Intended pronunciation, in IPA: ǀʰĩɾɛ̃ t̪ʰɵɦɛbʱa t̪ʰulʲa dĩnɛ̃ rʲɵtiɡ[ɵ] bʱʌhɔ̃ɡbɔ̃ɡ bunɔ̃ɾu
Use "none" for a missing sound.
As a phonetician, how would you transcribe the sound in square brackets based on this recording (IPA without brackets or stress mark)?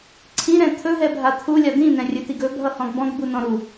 ɵ